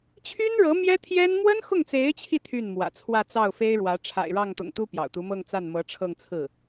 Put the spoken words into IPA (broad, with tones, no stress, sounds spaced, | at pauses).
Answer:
t͡ɕʰ y˥ n ɻ ɤ˧˥ m j ɛ˥ t̪ʰ j ɛ˥ n m w ə˥ n x ʊ˥˩ ŋ t͡s e˧˥ ɪ̯ t͡ɕʰ i˧ t̪ʰ y˥˩ n m w ä̰˨˩ t͡sʰ w ä˥˧ t͡s ɑ˥˩ ʊ̯ f e˥ ɪ̯ ɻ w ä˧˥ ʈ͡ʂʰ a̰˨˩ ɪ̯ ɻ ɑ˥˩ ŋ t̪ ʊ̰˨˩ ŋ t̪ u˥ p j ɑ̰˨˩ ʊ̯ t̪ u˧˥ m ɤ˥˧ ŋ t͡s a˥˩ n m ɤ˧˥ ʈ͡ʂʰ ɤ˥˧ ŋ t͡sʰ ɹ̩˥˩